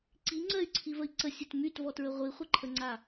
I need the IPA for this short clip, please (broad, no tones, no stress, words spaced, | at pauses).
ǀiŋ͡ǀɜy̯ǀʰivəi̯ ǀəsʲɘt mytvɔtɹə ʁʷiχʷəǃʰəŋ͡ǀa